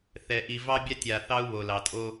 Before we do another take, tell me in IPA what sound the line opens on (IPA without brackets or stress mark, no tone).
θ